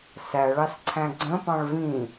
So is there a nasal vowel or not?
yes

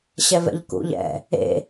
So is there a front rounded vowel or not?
no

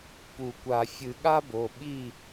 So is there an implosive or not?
yes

